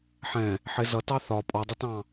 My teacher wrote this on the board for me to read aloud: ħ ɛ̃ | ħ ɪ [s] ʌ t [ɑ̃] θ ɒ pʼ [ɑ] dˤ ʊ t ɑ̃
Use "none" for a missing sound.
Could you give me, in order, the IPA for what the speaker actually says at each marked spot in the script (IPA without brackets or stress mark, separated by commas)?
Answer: z, ɑ, ɔ